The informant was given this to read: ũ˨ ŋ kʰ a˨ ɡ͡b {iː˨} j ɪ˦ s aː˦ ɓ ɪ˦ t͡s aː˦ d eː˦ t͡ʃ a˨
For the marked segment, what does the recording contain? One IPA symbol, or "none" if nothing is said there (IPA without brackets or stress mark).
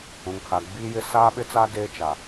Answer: iː˦